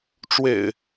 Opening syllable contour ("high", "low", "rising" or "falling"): low